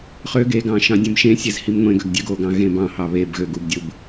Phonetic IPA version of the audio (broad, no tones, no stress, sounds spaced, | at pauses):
χ ø ɡ e ɡ ɑ̃ ʃ ɑ̃ dʲ ẽ m ʃ ẽ sʲ e z h i m ŋʷ ẽ ɡ ø ɡ dʲ ø ɡ o ɡ ɑ̃ ɣ ẽ b ɑ̃ h ɑ β e b ɣ ø ɡ u b dʲ ɯ b